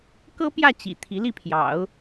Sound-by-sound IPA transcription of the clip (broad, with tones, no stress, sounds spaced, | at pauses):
k ɤ˥ p j ä˥˩ t͡ɕ ḭ˨˩ t̪ʰ i˧˥ l i˥˩ pʰ j ɑ̰˨˩˦ ʊ̯